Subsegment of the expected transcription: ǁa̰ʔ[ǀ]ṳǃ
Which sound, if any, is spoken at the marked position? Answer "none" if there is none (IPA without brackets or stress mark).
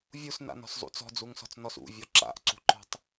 ǀ